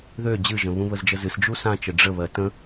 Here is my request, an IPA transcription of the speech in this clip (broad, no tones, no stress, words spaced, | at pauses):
ðø d͡ʑɨʒə̃ βũβəzd͡ʒəzɨs d͡ʒusãt͡ʃə ɖ͡ʐə βɜtə̃